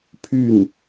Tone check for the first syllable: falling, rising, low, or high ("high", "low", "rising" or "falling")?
falling